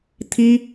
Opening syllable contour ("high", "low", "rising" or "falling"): high